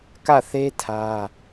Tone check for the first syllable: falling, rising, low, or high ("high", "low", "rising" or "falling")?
falling